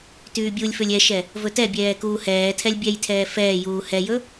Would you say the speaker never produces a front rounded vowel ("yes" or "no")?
no